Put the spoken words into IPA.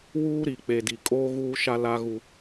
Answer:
wuː˦ɾi˨k͡pe˨di˨ kʼoː˦ɣuː˦ʃa˦ la˦ɣu˦

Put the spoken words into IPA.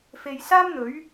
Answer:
fe˨jsaː˥mn̪ɵ˨˥ɥ

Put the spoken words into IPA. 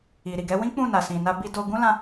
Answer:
i˨ɾi˨ɡɛ˨˦ wĩ˦k͡pũ˦˨ na˨sĩ˨na˧ bi˧do˧ ɡũ˦lã˧

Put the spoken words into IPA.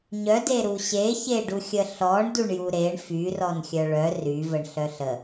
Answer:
ɲœde ɾuɕe çeɖuxʲə ɬɔɳ duɳjuɾeɳ fyrɔn xʲœɭœ ryvəɳ ɬœɬə

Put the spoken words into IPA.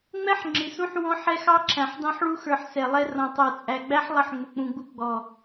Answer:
ŋ͡mɛ˦ħŋ͡ǁɪ˨sũ˦ħ wɔ̃˦ħɛ˦xɑ˦ǁʰæ̃˨ħ dɑ̃˦ħɭu˦xə˞˨ħ sɛ˨lˠɛ˦ rɔ̃˨tˤə˞˨t͡sʼæ˨ɡ͡bæ˦ħ lˠə˦ħŋ͡mʊ˨k͡pũ˨ɡ͡bu˦ ɡ͡bɔ˨

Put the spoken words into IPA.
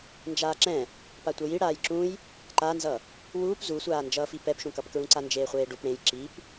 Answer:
nd͡ʒaːǁɛ̃ | patʷʌji ɽaːjǁũj | ǃanzʌ | wuːp zusʷaːnd͡ʒʌːfi pɛpʃũkʌpkɹũ ǀand͡ʒeːχʷeːɖup ɽẽj ǁip

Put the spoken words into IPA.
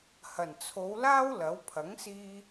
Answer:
hɐ˨˩nt͡sʰo˨˧wlaː˥w lɐ˨˥w pʰɐ˨˥ŋsiː˧

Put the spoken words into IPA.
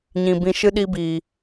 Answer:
ɲĩ˨bĩ˧ʃɨ˦ ɗi˧biː˨

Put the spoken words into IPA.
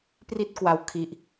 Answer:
pri˥˩t̚kwa˦˥w kʰi˦˥ʔ

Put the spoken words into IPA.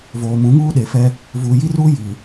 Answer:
voː˨ mũ˨˦ŋuː˦ɗe˨fɛ˦ | vuː˨ji˦ruː˦ jiː˨

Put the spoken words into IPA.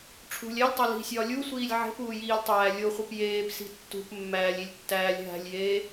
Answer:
ʈ͡ʂʰṳlʲ ælʲtˤo li̤sʲɒː lʲusʷiːlʲ ʕe̤puːjiːlʲtˤæː lʲoχʷip jeːpsi̤ tːṳpmːæːlʲilʲtːæːlʲ ɦæ̤lʲjeː

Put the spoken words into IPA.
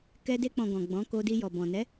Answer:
kɛ˧de˧k͡pɔ̃˨ ɡɔ̃˨ɡ͡bɔ̃˨˦ ko˧ di˧jɔ˨bɔ̃˨ nɛ˨˦

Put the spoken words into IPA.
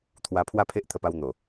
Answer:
t̪ʰwa˧ pʰwa˥˧pʰe˦ʔt̪ʰə˧pa˧w n̪o˨˩

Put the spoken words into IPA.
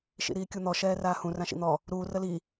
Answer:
ʃḭɾiːkʲun̪ɔ ʃɛːraːhũ rãʃḭn̪ɔ | ɾuː rəli

